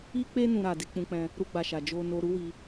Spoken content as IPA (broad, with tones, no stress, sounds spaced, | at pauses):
i˦ k͡p e˦ n ũ˧ ɾ a˨ d e˧ k͡p ũ˧ k͡p ɛ̃˧ | ɾ u˦ ɡ͡b a˧ ʃ a˨ d͡ʒ o˧ n o˧ ɾ u˦ w i˧